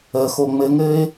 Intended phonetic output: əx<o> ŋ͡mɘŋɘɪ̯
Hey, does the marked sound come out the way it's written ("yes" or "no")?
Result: yes